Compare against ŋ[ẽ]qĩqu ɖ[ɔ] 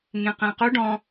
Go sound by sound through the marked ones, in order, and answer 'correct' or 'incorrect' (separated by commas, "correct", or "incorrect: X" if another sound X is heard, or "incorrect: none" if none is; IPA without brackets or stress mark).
correct, incorrect: ɔ̃